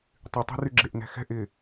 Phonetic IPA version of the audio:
tˤ y tˤ ɛ̤ r y ɡ͡ǁ e ʔ n ɛ̤ x ɛ̤ ʔ ɪ

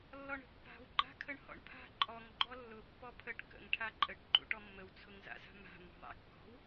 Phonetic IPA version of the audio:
lː ɔ ɳ ə̤ pː a̤ w ɡ͡ǃ a̤ kʰ ə ɳ h ɔ̰ ɳ pʰ a̤ ǃʼ ɔ ŋ ɡ͡ǃ ɔ lː ʊ pː ɔ pʰ ə ʈ k ə̰ ŋ ʈʰ a ǃʼ ə ʈ ǃ ṵ ʈ ɔ mː ə w t͡sʰ ʊ ŋ z a̰ z a̤ m a̤ m ɔ̤ ðˤ a̰ kː ɔ̤ w

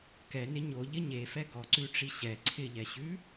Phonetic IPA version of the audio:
k ɛ n ɪ ɲ o ʎ ɪ ɲ e f ɛ ɡ ɔ ǀ ʉ ʈ͡ʂ i ɕ ɛ ǀʰ ɪ ʎ ɛ ɕ ʉ

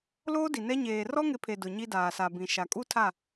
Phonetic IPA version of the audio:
l oː˦ d i˨ n ɛ˦ ɲ eː˨ r ɔ˦ ŋ ɪ˨˦ pʰ e˨ d ʊ˨ ɲ i˦ d aː˨ s a˨ b ĩ˨ ʃ a˨ kʼ u˦ tʰ a˦˨

